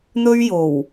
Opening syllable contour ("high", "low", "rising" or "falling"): high